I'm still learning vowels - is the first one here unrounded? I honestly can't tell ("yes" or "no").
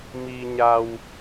yes